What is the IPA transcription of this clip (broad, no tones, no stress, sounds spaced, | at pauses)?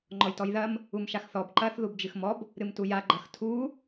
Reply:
ŋ͡ǃ ɔ j t ɔ j ð ɐ m | u m ʃ a x θ ɔ b ǃ ɐ θ ð u b d͡ʒ ɨ x m ɔ b | ɾ ɨ m t u j a ɡ͡ǃ ɐ x tʰ u